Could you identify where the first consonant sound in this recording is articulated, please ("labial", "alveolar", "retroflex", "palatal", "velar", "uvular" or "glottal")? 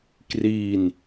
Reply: velar